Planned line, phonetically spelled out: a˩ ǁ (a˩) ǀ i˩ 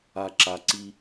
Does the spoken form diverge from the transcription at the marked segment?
no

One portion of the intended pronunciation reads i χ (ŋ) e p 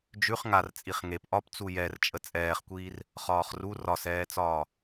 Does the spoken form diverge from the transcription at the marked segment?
no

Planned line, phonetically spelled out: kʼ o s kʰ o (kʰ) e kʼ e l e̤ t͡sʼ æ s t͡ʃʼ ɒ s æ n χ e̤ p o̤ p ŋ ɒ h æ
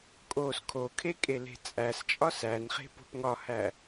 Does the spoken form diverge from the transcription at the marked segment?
no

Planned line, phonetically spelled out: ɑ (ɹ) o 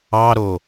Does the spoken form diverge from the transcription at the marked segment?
yes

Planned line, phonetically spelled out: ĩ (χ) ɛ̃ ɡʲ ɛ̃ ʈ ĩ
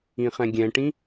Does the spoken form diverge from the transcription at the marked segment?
no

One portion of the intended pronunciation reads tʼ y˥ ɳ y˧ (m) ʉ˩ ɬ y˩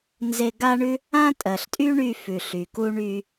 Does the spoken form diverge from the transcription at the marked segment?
yes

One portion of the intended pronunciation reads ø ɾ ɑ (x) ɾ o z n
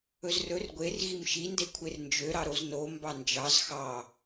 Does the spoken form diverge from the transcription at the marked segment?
yes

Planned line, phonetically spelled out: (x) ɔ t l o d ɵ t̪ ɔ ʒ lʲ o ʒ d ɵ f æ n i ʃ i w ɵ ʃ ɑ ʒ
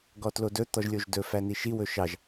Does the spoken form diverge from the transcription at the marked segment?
yes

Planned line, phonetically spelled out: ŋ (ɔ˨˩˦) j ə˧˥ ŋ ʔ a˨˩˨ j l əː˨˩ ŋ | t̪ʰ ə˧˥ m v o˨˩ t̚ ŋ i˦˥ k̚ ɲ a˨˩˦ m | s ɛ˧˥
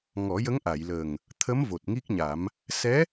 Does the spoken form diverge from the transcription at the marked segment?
no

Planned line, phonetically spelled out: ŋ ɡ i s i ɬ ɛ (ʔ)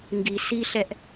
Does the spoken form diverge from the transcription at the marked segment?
no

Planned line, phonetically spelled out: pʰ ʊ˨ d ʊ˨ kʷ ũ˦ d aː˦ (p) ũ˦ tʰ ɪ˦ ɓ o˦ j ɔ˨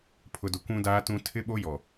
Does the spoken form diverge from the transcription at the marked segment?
yes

